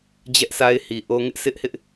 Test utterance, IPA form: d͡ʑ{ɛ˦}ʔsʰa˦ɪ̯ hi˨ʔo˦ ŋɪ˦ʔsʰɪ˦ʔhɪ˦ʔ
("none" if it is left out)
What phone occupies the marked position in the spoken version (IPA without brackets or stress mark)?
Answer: ɛ˦